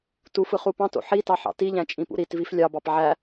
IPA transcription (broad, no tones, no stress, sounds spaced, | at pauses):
t u f ɯ χ u p ɑ̃ t o̰ ħ i t ɑ ħ ɑ̰ t i ʎ æ̃ t͡ʃʼ ĩ p ṵ ɾ i t v i f lʲ ɑ b ɑ p ʕ æ